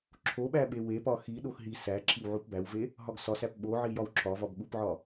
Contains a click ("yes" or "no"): yes